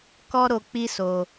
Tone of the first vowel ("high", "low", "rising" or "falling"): high